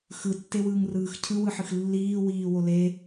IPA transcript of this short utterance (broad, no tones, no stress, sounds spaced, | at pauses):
x ɯ tː e w ɯː ŋ r ɯː x cʰ ɯ w ɯ ħ ɯ x lː iː w iː w o l e